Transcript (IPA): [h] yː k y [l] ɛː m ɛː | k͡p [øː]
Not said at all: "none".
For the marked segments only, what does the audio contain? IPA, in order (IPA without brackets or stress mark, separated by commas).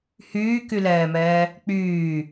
h, l, yː